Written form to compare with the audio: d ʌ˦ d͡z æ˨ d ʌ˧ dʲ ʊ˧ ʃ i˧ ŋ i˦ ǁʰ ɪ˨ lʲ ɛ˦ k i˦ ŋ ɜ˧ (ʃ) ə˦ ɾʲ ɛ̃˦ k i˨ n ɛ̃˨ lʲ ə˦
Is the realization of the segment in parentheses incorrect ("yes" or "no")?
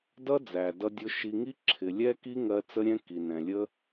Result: yes